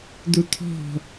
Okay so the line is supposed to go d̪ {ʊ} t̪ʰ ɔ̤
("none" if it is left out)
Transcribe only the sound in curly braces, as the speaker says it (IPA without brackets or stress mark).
u